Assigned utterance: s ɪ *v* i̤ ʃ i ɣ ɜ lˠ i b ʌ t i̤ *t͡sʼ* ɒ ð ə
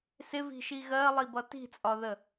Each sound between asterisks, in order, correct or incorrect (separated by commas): correct, correct